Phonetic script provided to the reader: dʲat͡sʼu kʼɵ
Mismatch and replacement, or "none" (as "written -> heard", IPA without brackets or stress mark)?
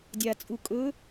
none